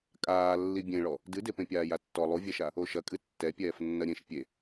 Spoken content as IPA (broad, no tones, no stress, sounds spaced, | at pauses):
kʼ aː lː i bʲ ẽ ɭ ɔ | d ɨ d e p ẽ pʲ aː j a tː ɔ lˠ u vʲ ɛ ʃ a | o ʃ ɐ kʼ ɨ tː ɛ pʲ ɛː f nː ɐ ɾʲ ẽ ʃ pʲ e